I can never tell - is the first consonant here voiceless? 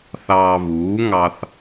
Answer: yes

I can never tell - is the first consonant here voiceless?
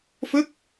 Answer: yes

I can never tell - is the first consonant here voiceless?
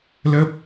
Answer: no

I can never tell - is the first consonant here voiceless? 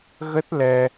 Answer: no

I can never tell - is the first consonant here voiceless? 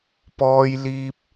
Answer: yes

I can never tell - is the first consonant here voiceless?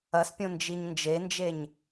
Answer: yes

